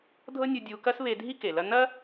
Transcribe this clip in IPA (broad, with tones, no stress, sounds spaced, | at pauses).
dʱ ɤ˦ nʲ u˧ dʲ u˧ k ɐ˦ s β e˧ dʱ i˦ k e˨ l ɐ˦ n ɐ˦